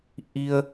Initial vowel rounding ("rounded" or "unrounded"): unrounded